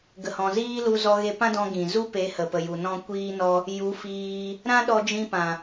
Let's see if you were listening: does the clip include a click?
no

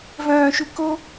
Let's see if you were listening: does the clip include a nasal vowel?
yes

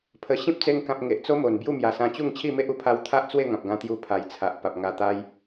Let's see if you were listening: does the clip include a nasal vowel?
yes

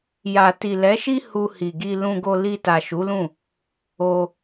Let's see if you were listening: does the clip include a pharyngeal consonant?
no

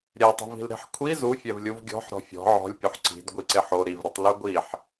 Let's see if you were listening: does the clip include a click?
yes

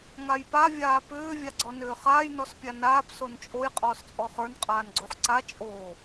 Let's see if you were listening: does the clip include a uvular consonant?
yes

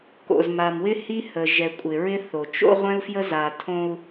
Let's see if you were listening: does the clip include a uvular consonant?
yes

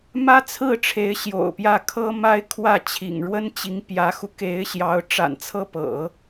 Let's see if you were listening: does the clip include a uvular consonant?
no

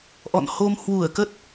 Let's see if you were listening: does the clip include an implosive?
no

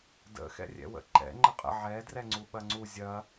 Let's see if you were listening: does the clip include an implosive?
yes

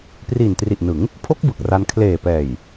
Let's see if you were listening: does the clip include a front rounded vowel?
no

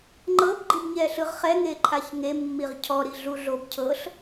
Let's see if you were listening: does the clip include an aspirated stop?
yes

